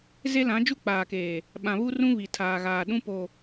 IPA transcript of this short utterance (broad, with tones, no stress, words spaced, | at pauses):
ze˦lã˨˦d͡ʒu˦ k͡paː˨keː˨ | ɓã˨βu˦rũ˦ βi˨tʰaː˨ɣaː˨ ɗũ˦po˨